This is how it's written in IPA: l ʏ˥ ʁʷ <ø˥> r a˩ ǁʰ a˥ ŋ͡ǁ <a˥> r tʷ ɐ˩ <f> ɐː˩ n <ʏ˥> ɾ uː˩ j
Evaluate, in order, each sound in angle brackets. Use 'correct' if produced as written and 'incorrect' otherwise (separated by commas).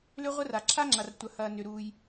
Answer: incorrect, incorrect, incorrect, incorrect